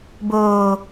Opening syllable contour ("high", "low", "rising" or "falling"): low